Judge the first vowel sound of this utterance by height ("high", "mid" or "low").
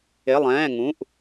high